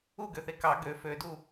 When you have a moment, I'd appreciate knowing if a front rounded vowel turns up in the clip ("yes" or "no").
yes